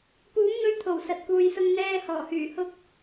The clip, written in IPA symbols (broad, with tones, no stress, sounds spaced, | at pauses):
p uː˨˥ m ŋ ɵ˧ ɥ t̪ʰ o˨˩ w s ɐ˧ t̚ k uː˧ j s ʊ˥ ŋ n̪ ɛː˧ h ɔː˨˩ h yː˨˩ h ʊ˥ k̚